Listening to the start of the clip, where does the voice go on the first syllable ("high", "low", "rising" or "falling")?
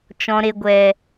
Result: low